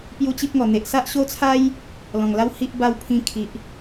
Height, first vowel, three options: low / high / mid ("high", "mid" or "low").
high